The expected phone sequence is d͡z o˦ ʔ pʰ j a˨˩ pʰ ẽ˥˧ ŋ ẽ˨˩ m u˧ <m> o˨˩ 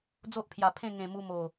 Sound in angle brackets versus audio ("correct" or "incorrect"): correct